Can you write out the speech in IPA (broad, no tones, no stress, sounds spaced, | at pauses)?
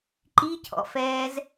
ǃ i cʰ ɔ̰ f ɛː z